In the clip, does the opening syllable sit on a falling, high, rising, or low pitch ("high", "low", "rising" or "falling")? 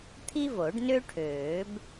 high